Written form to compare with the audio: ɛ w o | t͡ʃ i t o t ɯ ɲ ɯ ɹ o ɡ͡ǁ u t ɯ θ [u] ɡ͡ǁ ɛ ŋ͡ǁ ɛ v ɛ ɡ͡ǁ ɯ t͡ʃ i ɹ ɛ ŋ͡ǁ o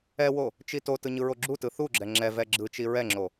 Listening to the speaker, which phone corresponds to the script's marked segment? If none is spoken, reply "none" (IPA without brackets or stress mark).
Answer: u